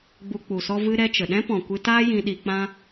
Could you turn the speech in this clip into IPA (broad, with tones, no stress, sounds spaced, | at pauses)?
ɡ͡b u˧ k͡p u˨ s ɔ˦ v ɨ˦ ɾ ɛ˦ t͡ʃ ə˨ ɗ ɛ̃˦ p ɔ̃˨ kʷ ɨ˧ t aː˦ j ĩ˧ ɗ i˧ k͡p ã˦